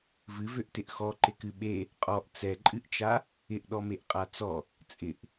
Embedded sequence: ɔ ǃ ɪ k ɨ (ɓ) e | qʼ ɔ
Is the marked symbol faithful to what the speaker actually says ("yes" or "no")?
yes